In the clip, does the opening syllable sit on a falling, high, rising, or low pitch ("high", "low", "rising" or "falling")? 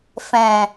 low